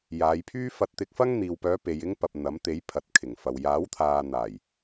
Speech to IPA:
jaː˨˧jpʰyː˥ fɐ˧t̚t̪ɪ˧k̚fɐ˥ŋ n̪iː˨wpœː˨˧pe˨j ɪ˥ŋpɐ˨p̚ n̪ɐ˨˥mt̪e˨˥j pʰɐ˨t̚kʰɪ˨˩ŋfɐ˨w jaː˨˥wt̪ʰaː˨ n̪aː˨˩j

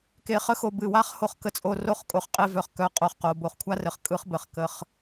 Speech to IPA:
ke˨χə˦xo˨ bɨ˨wa˦χho˧χ kə˦t͡sʼo˧ ro˦˨χkʼo˧χqʼe˧vœ˨χ kœ˧ qʼo˧χqo˨ bo˨χkʷʰa˦rɘ˨χ kʼɯ˦χ bɘ˨χkə˧χ

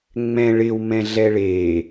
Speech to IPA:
ŋ͡mɛ̃ ɭɪw mɛ̃ɮɛɭe

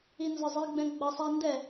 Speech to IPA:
inzɒzˤiɡ͡bɛ̃ ɡ͡bʌsˤæ ndɛ

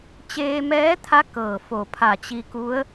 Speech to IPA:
t͡ɕeː˧mɛː˧˥t̪ʰa˧˥ kɤː˧˩fo˧˩ pʰa˧˩t͡ɕi˧ku˧˥ə̯

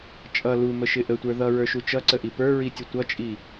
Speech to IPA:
t͡ʃʼʌ luməʃɪ ʔətʷə˞ ðʌɹə˞ʃu t͡ʃʌǀəʔi pə˞ɹitʲə tʷʌt͡ʃʼi

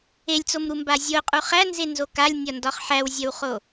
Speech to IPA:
elʲt͡somɾumba zʲoqʼu χænzenzo kalʲnʲɒndɒχ ħæwzʲɐwχo

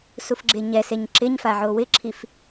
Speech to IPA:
sufɡ͡ǁeɲɛseɲ ǁɪɲfa ʕowɪǁʰif

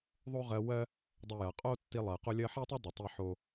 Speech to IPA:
ðˤo˦ʁɜ˧wɜ˦ | dˤʏ˦ jɐ˨qʼo˦tːi˧lˠɜ˨ qo˦lʲɜ˦ ħɛ˦tˤo˦dˤɘ˨ tˤi˦ħo˦

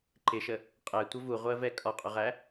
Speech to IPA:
ǃɪʃə | qʼɛtʷə vuʁʷɜvɛ kʼɒqʼʊʁæ

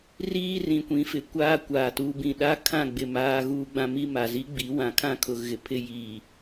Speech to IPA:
riː˦rĩ˨kʷĩ˨˦fɪ˨ kʷaː˦kʷaː˨tu˨˦bĩ˨ ɗa˦kʰã˦˨ɡ͡bɪ˨ maː˦ɣuː˦ ɡ͡bã˦mi˦ ma˨zi˦ɡ͡bi˨˦ wã˨kʰã˦˨kʰʊ˨ ɣɪ˨pʰɪ˦ jiː˨

